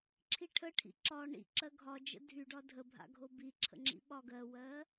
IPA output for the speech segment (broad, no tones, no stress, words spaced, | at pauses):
ǁʰiʈʰəʈʰḭ ǁɒ ɳḭǁɜ ɡʱɒ d͡ʒə̰dʱyɖɒ dʱəbʱa̰ ɡʱobiǁʰə̰ ŋ͡ǁḭɓɒɡɜwɜ